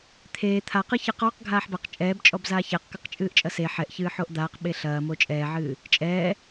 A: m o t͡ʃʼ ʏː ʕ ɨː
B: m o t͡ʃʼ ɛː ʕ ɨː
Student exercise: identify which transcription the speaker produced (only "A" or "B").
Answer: B